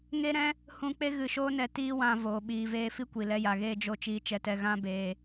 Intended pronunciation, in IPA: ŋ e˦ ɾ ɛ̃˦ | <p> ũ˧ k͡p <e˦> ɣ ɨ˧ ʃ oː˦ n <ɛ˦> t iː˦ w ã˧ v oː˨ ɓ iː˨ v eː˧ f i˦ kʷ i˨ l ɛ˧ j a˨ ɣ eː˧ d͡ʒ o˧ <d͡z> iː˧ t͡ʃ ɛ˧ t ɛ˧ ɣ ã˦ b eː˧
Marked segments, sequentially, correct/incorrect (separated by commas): incorrect, correct, incorrect, incorrect